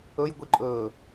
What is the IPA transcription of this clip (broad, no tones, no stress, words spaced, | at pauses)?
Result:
ɵjɡʷiǃʼɵː